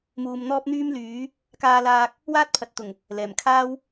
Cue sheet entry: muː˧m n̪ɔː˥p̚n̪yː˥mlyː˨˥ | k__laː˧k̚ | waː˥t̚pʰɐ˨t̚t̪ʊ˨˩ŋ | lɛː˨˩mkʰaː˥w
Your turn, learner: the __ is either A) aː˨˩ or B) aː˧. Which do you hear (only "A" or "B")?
B